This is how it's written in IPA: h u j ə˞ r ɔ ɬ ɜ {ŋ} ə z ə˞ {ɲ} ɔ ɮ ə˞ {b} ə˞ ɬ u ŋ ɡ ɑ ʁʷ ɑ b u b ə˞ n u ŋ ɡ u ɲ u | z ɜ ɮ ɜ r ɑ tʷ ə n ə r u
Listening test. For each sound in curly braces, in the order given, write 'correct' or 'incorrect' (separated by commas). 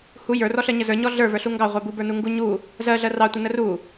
incorrect, correct, incorrect